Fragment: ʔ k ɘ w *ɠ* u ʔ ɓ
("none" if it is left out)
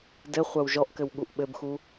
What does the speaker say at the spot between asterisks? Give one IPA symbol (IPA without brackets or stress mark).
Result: ɠ